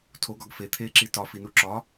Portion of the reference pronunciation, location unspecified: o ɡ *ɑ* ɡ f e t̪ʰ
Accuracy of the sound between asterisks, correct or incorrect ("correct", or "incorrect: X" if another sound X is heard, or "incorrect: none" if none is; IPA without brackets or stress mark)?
incorrect: ɒ